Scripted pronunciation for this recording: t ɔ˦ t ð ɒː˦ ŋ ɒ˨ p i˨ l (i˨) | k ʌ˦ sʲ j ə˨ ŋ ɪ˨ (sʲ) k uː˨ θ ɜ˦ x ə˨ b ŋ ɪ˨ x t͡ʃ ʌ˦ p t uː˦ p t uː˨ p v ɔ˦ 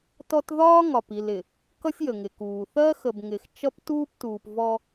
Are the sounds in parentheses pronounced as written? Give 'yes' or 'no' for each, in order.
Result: no, no

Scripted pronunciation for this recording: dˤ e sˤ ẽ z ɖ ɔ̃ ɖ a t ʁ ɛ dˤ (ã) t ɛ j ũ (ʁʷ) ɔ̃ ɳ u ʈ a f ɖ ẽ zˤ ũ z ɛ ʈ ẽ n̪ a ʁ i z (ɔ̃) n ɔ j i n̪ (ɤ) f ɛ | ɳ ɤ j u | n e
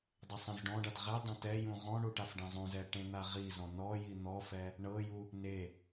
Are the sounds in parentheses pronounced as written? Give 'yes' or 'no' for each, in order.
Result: yes, no, yes, no

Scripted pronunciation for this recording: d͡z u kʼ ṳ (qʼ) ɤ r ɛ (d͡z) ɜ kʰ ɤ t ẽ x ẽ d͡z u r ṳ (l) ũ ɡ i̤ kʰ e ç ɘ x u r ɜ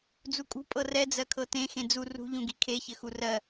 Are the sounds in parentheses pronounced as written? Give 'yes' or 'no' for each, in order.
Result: no, yes, no

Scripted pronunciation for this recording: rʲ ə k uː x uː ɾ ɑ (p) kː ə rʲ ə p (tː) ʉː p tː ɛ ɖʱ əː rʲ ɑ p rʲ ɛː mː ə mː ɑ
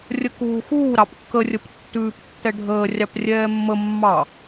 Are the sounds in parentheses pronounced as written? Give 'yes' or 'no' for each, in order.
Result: yes, yes

